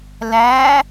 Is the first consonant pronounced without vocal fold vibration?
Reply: no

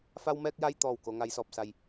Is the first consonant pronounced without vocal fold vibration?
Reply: yes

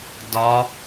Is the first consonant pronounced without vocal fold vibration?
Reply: no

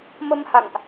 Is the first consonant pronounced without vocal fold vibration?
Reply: no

